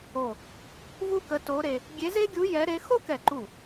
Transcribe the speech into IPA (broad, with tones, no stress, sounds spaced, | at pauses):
o˧˩ | v u˥ k ə˧˥ t o˧˥ ɾ e˧ | ɡʲ e˧˥ z e˥ ɡʲ u˧˥ j ɛ˧˥ ɾ e˧˥ x o˥ k ɛ˧˩ ǃ u˧˩